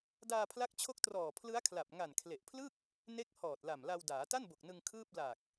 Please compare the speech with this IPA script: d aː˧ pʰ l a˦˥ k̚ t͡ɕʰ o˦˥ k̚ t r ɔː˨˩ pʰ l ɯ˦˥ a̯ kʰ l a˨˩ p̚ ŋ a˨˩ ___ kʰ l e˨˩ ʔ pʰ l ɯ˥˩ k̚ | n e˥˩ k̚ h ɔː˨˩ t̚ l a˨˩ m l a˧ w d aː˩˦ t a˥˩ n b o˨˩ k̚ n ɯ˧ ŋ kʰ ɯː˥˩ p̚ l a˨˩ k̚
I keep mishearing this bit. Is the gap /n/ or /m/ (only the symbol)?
n